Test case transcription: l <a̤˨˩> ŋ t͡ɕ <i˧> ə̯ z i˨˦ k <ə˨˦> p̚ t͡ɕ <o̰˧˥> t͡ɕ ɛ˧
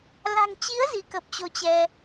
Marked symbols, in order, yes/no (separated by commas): yes, no, no, no